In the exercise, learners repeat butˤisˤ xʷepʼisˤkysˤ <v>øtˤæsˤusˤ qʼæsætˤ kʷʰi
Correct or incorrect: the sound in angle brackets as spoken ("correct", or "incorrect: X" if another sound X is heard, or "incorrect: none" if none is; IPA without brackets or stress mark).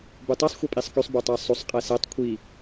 incorrect: b